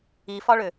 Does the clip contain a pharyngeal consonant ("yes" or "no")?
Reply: no